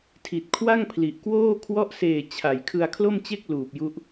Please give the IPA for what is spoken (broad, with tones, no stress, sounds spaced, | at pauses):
tʰ i˨˩ t̚ kʰ w a˥˩ ŋ pʰ l i˨˩ ʔ k w oː˥˩ kʰ w ɔ˦˥ ʔ s eː˨˩ t͡ɕʰ a˩˦ j kʰ ɯ˧ a̯ kʰ l o˥˩ m t͡ɕ e˥˩ k̚ l uː˨˩ p̚ j u˦˥ ʔ